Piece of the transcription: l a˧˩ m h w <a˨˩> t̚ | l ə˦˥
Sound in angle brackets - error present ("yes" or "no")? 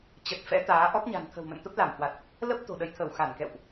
no